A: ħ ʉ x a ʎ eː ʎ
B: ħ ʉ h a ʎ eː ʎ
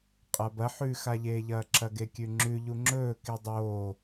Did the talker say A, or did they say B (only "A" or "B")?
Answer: A